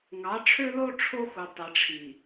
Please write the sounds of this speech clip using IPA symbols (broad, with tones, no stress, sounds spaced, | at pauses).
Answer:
ŋ ɑ˨˦ ʈ͡ʂʰ ø˦ l o˦ ʈ͡ʂʰ o˦ x u˨ tˤ e˨ ʈ͡ʂʰ i˨